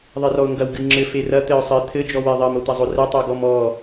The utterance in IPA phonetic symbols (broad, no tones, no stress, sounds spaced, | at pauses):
ðˤ e r ɔ ʊ̯ ŋ ɡ ɐ w ɡ ɨ ŋ͡ǁ ɘ f e r ɐ t̪ ɘ ʊ̯ sˤ ɘ t̪ʰ ɘ d͡ʒ ɔ w e ðˤ ɐ m o t̪ ɐ zˤ o r ɘ tˤ o ɡ ɔ m ɔ